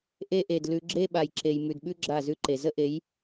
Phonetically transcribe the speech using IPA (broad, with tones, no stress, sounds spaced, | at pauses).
ʔ e˦ ʔ e˨ d l ʉ˧ ɡ͡ǁ e˦ ɓ a˨ j ǁ e˨ j m ʉ˨ d ɓ ʉ˦ ɡ͡ǁ a˦˨ z ʉ˦ ǃ e˨ z ə˦ ʔ e˨˦ j